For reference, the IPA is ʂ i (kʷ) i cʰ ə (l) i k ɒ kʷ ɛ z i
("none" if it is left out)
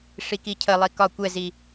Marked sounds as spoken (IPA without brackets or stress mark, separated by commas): k, lˠ